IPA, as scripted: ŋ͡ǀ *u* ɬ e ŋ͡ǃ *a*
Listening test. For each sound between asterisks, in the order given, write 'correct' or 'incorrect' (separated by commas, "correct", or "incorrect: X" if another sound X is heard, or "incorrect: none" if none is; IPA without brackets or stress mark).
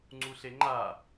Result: correct, correct